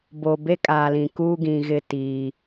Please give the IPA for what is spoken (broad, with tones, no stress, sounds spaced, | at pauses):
b o˨ b e˦ kʼ aː˨ l ĩ˨ k uː˦ ɡ ĩ˨ ɣ ɪ˦˨ t iː˨